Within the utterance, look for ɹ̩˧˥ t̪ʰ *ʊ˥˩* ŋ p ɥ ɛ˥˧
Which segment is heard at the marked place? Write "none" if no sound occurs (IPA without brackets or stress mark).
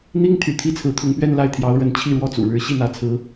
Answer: ʊ˧˥